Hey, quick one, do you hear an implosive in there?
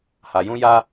no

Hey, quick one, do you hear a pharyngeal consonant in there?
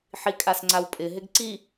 yes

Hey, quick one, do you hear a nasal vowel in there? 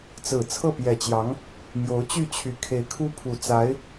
no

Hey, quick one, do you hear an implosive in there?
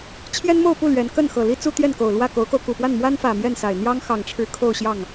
no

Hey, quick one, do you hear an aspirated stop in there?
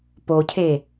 yes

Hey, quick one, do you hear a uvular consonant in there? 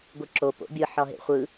yes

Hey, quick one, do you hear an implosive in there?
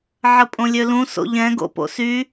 no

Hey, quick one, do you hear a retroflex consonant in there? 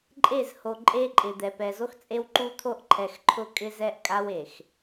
no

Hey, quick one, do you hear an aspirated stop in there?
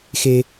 no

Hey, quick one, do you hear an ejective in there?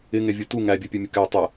no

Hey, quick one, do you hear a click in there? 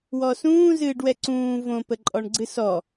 yes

